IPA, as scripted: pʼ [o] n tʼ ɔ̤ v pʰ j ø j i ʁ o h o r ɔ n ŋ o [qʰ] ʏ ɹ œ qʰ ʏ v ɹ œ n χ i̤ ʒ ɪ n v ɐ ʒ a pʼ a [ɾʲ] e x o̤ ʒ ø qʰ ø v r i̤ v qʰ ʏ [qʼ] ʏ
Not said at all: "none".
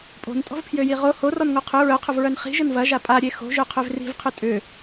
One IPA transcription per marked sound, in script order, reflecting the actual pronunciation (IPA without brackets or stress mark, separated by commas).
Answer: o̤, qʰ, ɾʲ, tʼ